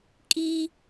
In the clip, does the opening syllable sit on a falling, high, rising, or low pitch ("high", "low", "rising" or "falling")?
high